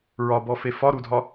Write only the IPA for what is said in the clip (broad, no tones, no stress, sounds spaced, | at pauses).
ɹ ɒ b ɔ f e f ɒ ɾ u dʱ ɒ